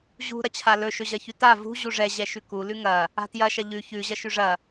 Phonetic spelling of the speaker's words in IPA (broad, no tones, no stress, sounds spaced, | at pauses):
ʑ ṳ ɾ ɐ t͡ɕʰ a l ɵ ʃ ɵ ʑ ɐ ç ʉ t a v ṳ ʑ u ʐ ɛ ʑ ɛ ʃ ʉ k u l ʉ ŋ ɐ | a̤ t j ɐ ʃ ɐ ʎ ʉ ç ʉ ʑ ɐ ʃ ʉ ʐ ɐ